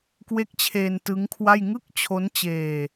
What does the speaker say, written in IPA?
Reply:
k w e˦˥ k̚ t͡ɕʰ eː˧ n t ɯ˦˥ ŋ kʰ w a˥˩ j ŋ ɯ˥˩ k̚ t͡ɕʰ o˦˥ n t͡ɕ eː˧

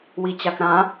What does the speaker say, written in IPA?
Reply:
w i t͡ɕ a k ɾ ã

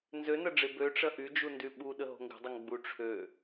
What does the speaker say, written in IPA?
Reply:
n z ø n ɐ ɖ͡ʐ e b ø ʈ͡ʂ ɐ ʔ y d͡ʒ u n d y ɓ u ɗ ə ɦ o̤ ŋ ɡ ə̤ dˤ ə ŋ ɡ͡b u ʈ͡ʂʰ ø

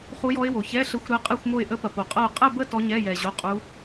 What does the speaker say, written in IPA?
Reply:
χ u˦˥ j ɔ˦˥ ɪ̯ w o˨ ç ɛ˧˥˧ ɬ ə˦˥ xʷ ɾ ɛ˦˥ qʼ ɛ˥˧ xʷ m o˥˧ ɪ̯ ʔ ə˦˥ p ɐ˨ p o˨ qʼ ɐ˥˧ ʊ̯ qʼ ɛ˥˧ b ə˥˧ t ɔ˦˥ ɲ ɛ˧˥˧ j ɛ˨ ʑ o˧˥˧ qʼ u˦˥

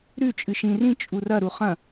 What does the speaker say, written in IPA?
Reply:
ɾ ʉ t͡ʃʼ ɨ ʃ ĩ r ĩ t͡ʃʼ u r ɐ ɾ u χ ɐ̃

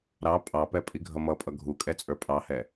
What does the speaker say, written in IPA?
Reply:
ɾ ɑ pʼ ɑ p ɛ pʼ i ɡʱ ʌ m ʌ pʼ ʌ ɡʱ u kʼ ɛ t͡sʼ ə˞ pʼ ɑ h ɛ

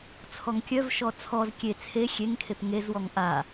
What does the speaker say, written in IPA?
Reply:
t͡sʰ ɔ ŋ kʲ œ v ʃ ɔ t͡sʰ ɔ z kʲ e t͡sʰ e xʲ e ŋ kʰ e p ŋ e z w ɔ ŋ ʔ a

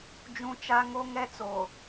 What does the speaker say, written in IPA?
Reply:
d͡ʒ ũ˦ t͡ʃ a˦ ŋ o˦ ŋ ɛ˦ t͡s oː˨

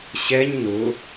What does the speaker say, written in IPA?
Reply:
ɕ ɛ ɲ n ʊ

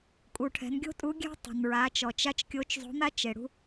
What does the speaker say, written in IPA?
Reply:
kʼ u˩ ʈʰ ɛ̤˩˧ n ɡʲ o̤˥ tʼ u˧˥ ɡʲ ɛ̤˥ tˤ o̤˩ n ɹ a˩˧ t͡ʃ ɔ˩ t͡ʃ a˧ t͡ʃ kʲ o˧˥ t͡ʃ zˤ o̤˧˥ n̪ a˥ t͡ʃ e˩ ɽ ṳ˧

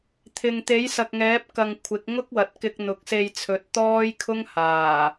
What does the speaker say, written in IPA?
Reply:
t̪ʰ ɪ˨ ŋ t̪ e˨˥ j s ɐ˨ k̚ ŋ ɛː˨˥ p̚ k ɐ˧ ŋ kʷʰ ɪ˨˥ k̚ ŋ ʊ˥ k̚ w ɐ˨ t̚ k ɪ˧ k̚ n̪ ʊ˨˥ k̚ s e˧ j t͡sʰ ɵ˨˥ t̚ t̪ ɔː˥ j kʰ ʊ˥ ŋ h aː˨˩

